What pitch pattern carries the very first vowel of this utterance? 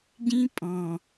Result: high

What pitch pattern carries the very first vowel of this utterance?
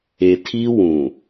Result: low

